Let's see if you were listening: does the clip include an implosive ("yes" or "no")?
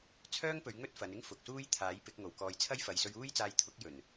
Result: no